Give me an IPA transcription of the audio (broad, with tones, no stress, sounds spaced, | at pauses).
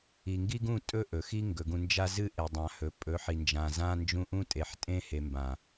i˨ ŋ ɡ i˦ ɡ ũ˦˨ tʼ ɵ˦ ʔ ɵ˨ x i˦ ŋ ɡ ɵ˨ ɡ ũ˨ n d͡ʒ a˦ z ɨ˦ ʔ e˨ dˤ ã˨ h ɵ˨ pʼ ɵ˨˦ ħ i˨ n d͡ʒ ã˨ z ã˦ n d͡ʒ ũ˦ ʔ ũ˦ tʼ e˨ ħ tʼ ẽ˦ h e˨ m b ã˨